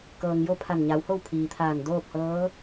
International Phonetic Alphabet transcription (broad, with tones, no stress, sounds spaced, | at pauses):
k ɤː˩ ŋ j o˥˨ pʰ a˧˩ n ɲ a˩˧ w h o˥˨ w pʰ iː˩ t̪ʰ aː˧˩ n d oː˥˨ p̚ h ɤː˧˥